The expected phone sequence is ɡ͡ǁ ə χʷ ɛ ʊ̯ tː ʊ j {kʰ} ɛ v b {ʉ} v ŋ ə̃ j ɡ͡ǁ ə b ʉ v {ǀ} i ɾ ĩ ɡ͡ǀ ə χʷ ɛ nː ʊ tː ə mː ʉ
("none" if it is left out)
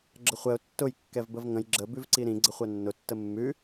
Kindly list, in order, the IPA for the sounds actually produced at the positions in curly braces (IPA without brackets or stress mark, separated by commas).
kː, ə, ǀ